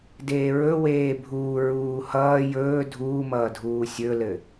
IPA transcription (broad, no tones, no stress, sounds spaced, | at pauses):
d eː ɹ ɵ w eː bʱ uː ɹ uː h ʌː j ɵː dʱ uː m ʌː dʱ uː sʲ ɵ l ɘ